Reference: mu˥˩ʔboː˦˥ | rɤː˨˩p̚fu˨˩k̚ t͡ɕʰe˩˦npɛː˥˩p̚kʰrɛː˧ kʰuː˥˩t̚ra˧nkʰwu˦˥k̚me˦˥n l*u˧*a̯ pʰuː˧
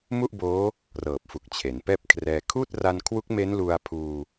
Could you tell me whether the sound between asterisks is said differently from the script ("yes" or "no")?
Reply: no